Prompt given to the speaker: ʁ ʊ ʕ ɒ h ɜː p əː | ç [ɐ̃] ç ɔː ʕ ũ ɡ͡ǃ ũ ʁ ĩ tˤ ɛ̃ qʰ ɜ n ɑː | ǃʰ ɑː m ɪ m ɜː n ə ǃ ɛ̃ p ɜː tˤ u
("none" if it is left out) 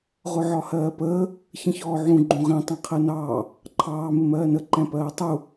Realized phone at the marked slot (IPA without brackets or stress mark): ə̃